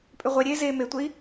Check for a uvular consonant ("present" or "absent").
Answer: present